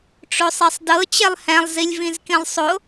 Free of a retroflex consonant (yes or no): no